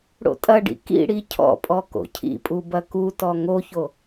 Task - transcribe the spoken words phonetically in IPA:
ɽ o̰ tʼ ɐ ɖ ḭ k ḭ ɽ i cʰ ɔ̰ pʼ ɔ k o̰ cʰ ḭ pʼ u b ɐ k u t ɔ ŋ o ç o

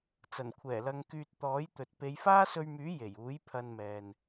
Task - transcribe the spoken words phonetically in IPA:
t͡s ɐ˨˩ n kʷʰ ɛː˨˩ l ɐ˧ ŋ k yː˧ t̚ t̪ ɔː˨˥ j t̪ ɵ˨ t̚ p e˨˧ j f aː˥ s ɵ˧ ɥ m yː˨˥ j e˨˩ j uː˨˥ j pʰ ɐ˧ n m ɛː˨ n

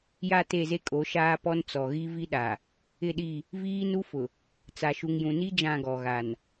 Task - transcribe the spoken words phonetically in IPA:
j a˦˨ t e˦˨ z e˦ kʼ o˨˦ ʃ aː˦ p ɔ˦ n t͡s ɔ˨ ɣ i˦ v i˦ ɗ a˨ | ɪ˦˨ ɗ i˦˨ | v iː˦ n u˦ f ʊ˨ | t͡s a˨ ʃ u˨ ŋ j ũ˨ n i˦ d͡ʒ ã˦˨ ɡ ɔ˨ ɣ a˨ n

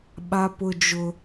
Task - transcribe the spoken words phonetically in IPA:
ɓ a˦ p ʊ˦ d͡ʒ ʊ˦

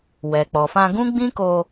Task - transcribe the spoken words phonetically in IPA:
w ɛ˨ k͡p ɔ˨ f ã˧ ɡ ũ˦ ɡ͡b ĩ˦ k o˧

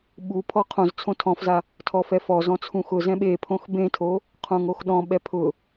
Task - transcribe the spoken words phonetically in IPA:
ɓ u pʰ ɔ qʰ õ z t͡sʰ õ tʰ ɔ̃ f z a | tʰ ɔ f ɛ f ɔ z ɔ̃ t͡sʰ ũ x ʊ z ɛ̃ ɓ e pʰ õ x b ẽ tʰ o | qʰ õ ŋ o x ɗ ɔ̃ ɓ ɛ pʰ ʊ

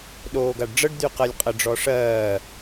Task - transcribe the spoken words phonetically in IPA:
ɗ oː ɡ a ɖ ɖ͡ʐ ə ɖ d̪ y q ɜ lʲ qʼ ə ɖ͡ʐ ɔ ʂ ɜː

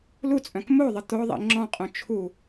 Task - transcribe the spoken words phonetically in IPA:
l u t͡sʼ œ̃ k m o ðˤ ə t̪ o ðˤ ḭ ŋ͡ǁ ɔ̃ qʼ õ t͡ʃʰ u

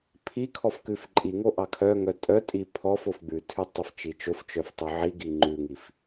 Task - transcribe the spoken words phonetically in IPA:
pʰ i kʰ ɔ f k ʉ f ǃʼ i ŋ o ʔ ɑ kʰ œ ŋ œ tʼ œ tʼ i pʰ ɔ f o f ɡ͡b ʉ tʰ ʉ tˤ œ f t͡ʃ i t͡ʃ o f t͡ʃ œ f tˤ ʉ ʕ i ɡ i ŋ͡ǃ ʉ ŋ i f

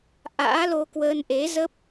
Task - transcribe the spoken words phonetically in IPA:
ʔ a̰ː˧˥ l o˧ k w əː˧ n ʔ e˨˦ z ə˦˥ p̚

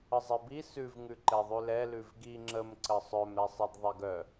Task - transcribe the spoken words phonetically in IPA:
ə zˤ e b i s ʉ v ŋ ʉ ǃ ɛ ðˤ ʉ l ɛ l ʉ v ɡ i ŋ͡ǁ ə m ǀ ə sˤ œ m ɾ ɛ sˤ ɛ d ðˤ e ɡ œ

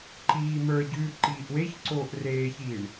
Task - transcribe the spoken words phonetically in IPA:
ǃ iː m ə˞ ɟ ʉː ǃ iː ʔ w e ç ǀ oː ʔ r eː ç iː ɳ

